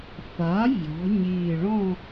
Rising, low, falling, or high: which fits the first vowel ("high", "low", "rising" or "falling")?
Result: rising